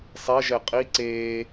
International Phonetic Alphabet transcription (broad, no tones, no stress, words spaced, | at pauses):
sˤeʒɛ qʼi ǀeː